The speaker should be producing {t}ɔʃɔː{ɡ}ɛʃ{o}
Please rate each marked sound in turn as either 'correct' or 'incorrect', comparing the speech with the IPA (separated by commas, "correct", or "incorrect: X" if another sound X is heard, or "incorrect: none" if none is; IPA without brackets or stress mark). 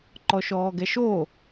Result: incorrect: ǃ, correct, correct